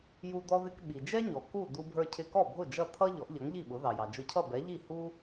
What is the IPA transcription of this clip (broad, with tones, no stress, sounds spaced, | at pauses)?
j u˧ d̪ ɔ˧ ð ɪ˧ k ɓ i˩ d͡ʒ ɛ˥ ɲ ɔ˩ k u˥˩ d̪ u˧ bʱ ə˞˧ cʰ ɪ˧ k ɔ˥˩ bʱ ʊ˥˩ d͡ʒ ʌ˥˩ t̪ʰ ʌ˥ ʎ ɔ˩˥ ʔ ʎ ʌ˩˥ ŋ ʎ i˥˩ ɓ ʊ˩˥ ð ɑ˩ j ɑ˩ d͡ʒ ʊ˧ cʰ ʌ˥˩ b ɛ˩˥ ʎ i˥˩ h u˥